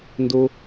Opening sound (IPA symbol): n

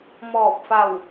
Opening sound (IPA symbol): m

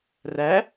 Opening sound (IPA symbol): r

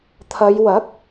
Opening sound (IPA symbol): t̪ʰ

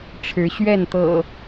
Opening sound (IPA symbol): ʈ͡ʂʰ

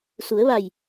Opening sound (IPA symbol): s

